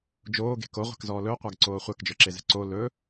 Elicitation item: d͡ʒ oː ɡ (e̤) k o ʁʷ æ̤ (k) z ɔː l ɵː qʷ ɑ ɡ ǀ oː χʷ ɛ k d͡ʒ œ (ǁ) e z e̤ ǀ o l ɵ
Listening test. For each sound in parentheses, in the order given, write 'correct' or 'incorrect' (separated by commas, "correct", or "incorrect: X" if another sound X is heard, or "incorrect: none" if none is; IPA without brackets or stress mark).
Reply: correct, correct, correct